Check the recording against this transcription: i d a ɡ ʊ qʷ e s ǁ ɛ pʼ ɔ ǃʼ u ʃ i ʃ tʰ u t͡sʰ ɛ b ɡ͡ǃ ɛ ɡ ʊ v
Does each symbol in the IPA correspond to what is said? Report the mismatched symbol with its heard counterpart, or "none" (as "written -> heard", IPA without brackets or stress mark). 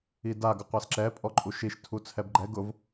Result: none